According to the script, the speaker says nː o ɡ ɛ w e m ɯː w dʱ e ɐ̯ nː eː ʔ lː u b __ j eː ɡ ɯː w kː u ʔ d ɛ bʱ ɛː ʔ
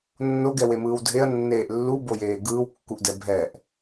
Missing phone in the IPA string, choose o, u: o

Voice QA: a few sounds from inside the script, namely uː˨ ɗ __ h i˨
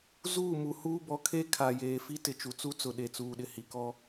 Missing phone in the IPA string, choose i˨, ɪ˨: ɪ˨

